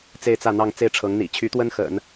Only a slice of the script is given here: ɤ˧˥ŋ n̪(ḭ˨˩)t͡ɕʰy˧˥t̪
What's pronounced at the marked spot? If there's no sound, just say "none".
ḭ˨˩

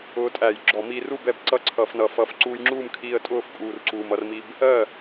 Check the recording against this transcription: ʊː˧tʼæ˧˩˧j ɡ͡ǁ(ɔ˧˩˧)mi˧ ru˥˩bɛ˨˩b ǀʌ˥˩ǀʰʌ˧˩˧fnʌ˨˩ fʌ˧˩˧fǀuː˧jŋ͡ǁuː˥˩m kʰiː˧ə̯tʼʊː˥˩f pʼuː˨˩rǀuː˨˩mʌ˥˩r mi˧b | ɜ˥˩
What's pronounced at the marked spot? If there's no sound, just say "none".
ɔ˧˩˧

